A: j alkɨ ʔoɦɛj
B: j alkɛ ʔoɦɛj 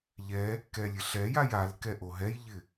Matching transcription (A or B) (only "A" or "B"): B